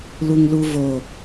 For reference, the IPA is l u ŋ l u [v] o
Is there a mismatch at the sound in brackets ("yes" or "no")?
no